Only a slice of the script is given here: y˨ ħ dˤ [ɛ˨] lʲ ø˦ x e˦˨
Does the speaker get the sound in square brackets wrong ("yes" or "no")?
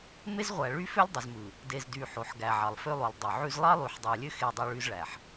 yes